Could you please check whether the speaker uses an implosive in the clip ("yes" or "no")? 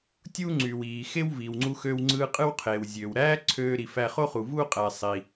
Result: no